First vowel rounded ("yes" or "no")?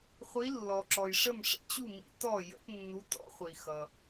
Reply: no